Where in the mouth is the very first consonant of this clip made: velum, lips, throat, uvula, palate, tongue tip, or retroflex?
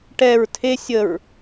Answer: retroflex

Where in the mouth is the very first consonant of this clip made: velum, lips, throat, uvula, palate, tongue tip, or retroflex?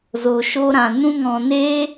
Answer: tongue tip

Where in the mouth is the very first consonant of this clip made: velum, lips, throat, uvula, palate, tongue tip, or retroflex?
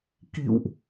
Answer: velum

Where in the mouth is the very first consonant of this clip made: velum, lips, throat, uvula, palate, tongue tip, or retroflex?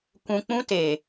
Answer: velum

